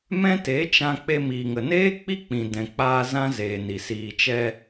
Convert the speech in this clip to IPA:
mɛ̃˦ te˨˦t͡ʃã˧ k͡pe˧miː˨ŋə˨neː˦ k͡pi˦k͡pĩ˨ dɛ̃˨k͡paː˧ zã˦zeː˨ni˨ siː˨t͡ʃɛ˧

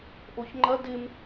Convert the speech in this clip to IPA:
ʔoçŋ͡ǃɐ dɪm

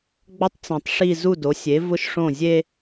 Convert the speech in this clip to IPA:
ɡ͡bɔ˥tˤt͡sĩ˩tˤʂi˥˩ zu˥˩do˩˥sʲe˩˥ vʊ˥ʃʂõ˥˩zʲe˥

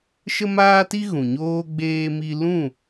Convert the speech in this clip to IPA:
ʃə˦maː˦ti˦ ɣũ˨ɲoː˦ ɡ͡beː˧mi˧lũ˦˨

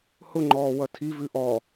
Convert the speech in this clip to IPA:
hʊŋ͡ǃɔː wʌtʰivʉ ʔɔ

